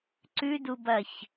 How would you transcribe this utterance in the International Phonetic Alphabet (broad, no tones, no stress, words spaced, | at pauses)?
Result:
ǀʉdubɐç